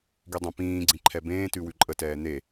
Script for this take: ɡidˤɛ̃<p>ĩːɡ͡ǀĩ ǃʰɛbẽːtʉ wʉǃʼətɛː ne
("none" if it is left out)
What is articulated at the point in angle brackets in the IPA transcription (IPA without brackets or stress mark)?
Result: p